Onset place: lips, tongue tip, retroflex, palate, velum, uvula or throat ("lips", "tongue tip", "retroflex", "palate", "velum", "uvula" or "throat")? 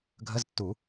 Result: velum